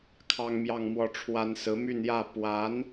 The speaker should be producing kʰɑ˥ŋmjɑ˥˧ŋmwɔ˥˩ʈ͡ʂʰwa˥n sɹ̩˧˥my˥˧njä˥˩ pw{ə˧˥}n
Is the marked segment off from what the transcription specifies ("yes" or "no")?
yes